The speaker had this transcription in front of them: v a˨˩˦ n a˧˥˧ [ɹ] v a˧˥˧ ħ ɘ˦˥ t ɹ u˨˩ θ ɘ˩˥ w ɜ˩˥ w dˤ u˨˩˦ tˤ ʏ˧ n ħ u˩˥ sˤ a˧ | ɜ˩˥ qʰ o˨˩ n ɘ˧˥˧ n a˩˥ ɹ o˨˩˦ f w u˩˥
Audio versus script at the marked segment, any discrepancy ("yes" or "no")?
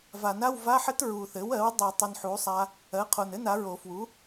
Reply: yes